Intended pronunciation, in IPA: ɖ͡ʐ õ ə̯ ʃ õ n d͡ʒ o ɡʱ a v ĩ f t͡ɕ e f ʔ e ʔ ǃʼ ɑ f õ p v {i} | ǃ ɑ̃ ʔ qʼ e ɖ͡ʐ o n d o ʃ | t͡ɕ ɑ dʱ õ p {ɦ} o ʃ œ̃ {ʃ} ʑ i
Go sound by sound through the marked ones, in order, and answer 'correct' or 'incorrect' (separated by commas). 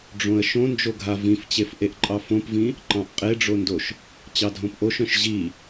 incorrect, incorrect, correct